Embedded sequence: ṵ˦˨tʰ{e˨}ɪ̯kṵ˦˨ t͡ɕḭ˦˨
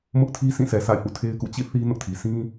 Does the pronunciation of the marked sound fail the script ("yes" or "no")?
yes